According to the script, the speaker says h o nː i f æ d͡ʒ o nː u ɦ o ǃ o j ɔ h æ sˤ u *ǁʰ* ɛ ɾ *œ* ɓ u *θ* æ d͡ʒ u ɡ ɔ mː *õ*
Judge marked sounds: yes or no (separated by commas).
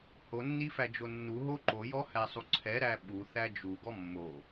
no, no, yes, no